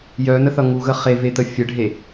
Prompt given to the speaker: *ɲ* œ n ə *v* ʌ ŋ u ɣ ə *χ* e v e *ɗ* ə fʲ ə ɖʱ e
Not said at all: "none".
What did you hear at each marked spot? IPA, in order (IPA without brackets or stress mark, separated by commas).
j, θ, χ, t̪